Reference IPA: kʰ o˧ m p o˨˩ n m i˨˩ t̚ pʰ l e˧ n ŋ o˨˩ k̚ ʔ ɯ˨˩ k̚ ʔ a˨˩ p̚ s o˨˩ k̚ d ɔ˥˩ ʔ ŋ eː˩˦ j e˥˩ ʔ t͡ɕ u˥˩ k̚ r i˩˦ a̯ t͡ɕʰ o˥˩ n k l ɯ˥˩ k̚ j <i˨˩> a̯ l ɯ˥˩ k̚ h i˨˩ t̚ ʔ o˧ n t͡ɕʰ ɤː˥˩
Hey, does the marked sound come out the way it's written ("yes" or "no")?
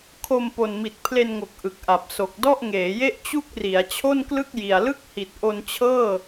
yes